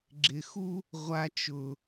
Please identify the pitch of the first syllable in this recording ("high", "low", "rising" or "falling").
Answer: low